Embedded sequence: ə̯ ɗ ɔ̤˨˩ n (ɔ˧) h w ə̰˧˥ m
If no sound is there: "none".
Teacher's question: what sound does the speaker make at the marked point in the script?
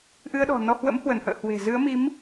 ɔ˧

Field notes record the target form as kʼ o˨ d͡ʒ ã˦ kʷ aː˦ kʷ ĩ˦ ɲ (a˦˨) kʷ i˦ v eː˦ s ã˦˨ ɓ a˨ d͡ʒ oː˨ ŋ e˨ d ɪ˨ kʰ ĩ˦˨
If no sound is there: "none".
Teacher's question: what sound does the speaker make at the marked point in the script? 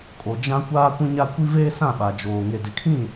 a˦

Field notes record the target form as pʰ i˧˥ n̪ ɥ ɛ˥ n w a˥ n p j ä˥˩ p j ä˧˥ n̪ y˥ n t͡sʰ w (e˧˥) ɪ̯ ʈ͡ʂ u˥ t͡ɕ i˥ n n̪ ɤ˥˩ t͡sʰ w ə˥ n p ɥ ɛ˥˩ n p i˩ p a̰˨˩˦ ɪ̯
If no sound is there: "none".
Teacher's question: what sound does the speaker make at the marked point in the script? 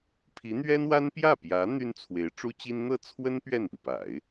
e˧˥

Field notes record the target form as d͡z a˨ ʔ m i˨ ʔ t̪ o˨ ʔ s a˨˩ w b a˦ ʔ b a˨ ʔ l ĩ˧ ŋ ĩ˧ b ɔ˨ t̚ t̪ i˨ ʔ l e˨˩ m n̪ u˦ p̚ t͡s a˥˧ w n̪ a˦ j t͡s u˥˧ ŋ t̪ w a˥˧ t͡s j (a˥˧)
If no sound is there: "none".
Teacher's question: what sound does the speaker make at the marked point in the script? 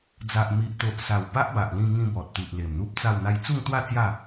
a˥˧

